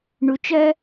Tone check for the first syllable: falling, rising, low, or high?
low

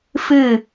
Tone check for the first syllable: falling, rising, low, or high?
falling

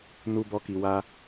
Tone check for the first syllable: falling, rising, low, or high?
high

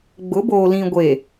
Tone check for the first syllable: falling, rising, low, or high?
rising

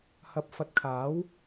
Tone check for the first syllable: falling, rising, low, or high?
rising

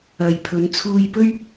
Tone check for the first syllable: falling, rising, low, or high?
low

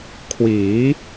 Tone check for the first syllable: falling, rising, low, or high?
rising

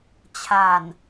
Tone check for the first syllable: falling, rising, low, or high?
low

